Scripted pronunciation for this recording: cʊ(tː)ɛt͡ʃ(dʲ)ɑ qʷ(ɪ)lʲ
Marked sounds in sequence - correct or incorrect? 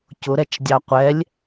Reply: incorrect: ɾ, correct, incorrect: ɛ

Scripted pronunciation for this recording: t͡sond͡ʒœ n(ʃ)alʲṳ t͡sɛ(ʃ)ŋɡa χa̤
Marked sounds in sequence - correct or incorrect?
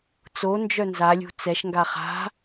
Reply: incorrect: z, correct

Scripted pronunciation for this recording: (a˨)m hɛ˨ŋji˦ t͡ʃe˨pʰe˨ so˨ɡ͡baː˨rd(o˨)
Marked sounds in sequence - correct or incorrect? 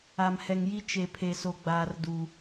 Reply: correct, incorrect: u˨

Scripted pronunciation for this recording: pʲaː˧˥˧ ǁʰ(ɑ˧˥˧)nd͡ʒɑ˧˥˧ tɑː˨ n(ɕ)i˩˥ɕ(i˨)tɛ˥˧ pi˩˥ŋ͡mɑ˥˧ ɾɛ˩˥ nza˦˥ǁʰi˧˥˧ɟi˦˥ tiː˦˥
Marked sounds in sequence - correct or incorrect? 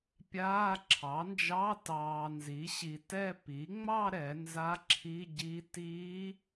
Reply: incorrect: ɑ˩˥, incorrect: z, correct

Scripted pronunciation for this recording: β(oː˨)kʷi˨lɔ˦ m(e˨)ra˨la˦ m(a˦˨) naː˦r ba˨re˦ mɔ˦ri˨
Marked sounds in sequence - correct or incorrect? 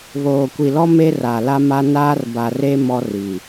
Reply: correct, incorrect: e˦, incorrect: a˦

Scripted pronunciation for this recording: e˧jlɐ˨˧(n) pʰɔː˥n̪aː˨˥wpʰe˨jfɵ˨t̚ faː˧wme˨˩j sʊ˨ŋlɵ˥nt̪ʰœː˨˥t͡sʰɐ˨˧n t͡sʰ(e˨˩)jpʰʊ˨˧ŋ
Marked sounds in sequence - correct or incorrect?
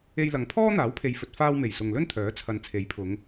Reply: incorrect: ŋ, incorrect: e˨˥

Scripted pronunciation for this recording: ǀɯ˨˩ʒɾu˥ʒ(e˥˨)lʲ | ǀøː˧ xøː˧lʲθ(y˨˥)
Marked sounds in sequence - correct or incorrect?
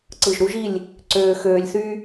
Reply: incorrect: i˥˨, incorrect: y˥

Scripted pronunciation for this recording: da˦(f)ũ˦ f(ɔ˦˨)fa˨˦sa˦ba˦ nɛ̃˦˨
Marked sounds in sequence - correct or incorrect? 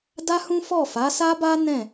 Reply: incorrect: h, correct

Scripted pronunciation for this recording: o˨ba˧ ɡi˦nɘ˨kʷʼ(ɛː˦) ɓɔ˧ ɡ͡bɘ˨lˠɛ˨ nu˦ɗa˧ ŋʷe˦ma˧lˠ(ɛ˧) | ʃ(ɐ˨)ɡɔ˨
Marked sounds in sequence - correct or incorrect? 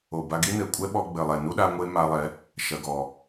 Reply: incorrect: ɛ˦, incorrect: ɛ˨˦, correct

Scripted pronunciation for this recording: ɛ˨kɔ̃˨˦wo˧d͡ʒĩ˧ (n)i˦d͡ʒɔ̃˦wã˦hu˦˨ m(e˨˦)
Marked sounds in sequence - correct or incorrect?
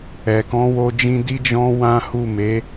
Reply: incorrect: d, correct

